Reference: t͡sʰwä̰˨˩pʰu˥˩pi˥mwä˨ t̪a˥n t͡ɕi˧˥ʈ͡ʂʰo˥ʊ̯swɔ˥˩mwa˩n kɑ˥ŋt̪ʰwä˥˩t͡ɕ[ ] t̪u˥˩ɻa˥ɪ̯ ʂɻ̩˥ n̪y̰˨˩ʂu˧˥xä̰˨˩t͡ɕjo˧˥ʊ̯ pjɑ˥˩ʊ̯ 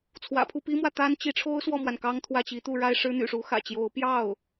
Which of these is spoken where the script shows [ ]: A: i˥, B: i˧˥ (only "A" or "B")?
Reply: B